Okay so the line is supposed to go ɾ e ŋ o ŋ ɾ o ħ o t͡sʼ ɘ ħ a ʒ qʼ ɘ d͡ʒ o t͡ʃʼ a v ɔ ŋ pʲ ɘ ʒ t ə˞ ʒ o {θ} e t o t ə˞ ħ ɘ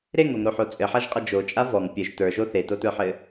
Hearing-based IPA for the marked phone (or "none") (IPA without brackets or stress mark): θ